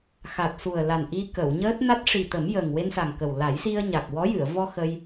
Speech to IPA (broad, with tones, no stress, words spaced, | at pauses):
xa˨˩t̚su˨˩ə̯la˨˩nʔi˧ kə˨˩˨wɲəː˦˥t̚ na˦˥t̚ʂi˨˩t̪ə˨˩˦m jə˨˩ŋ we˧nsa˨˩ŋkə˨˩w la˨˩˦jsi˧ə̯ ɲa˨˩k̚wɔ˧˥jɨ˨˩˨ə̯ vɔ˧ xə˧j